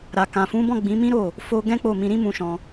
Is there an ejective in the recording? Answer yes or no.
no